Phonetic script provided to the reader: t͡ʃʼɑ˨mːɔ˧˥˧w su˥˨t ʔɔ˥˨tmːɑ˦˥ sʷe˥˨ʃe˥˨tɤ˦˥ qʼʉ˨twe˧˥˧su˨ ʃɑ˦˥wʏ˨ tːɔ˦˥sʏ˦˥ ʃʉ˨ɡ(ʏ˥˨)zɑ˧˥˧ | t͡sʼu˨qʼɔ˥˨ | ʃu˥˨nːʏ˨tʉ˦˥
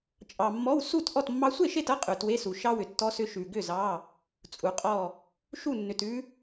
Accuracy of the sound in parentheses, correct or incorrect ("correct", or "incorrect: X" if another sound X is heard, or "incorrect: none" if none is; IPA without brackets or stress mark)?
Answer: correct